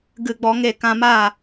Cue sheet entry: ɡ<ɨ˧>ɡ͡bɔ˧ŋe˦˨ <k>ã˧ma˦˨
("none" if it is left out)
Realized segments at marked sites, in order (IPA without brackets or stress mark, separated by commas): ɨ˧, k